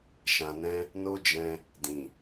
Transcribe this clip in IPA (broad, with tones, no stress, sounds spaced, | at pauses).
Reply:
ʃ ã˧ n ɛ̃˦ | n o˦ d͡ʒ ɛ̃˧ | d ĩ˨